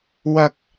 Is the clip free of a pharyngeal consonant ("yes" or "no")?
yes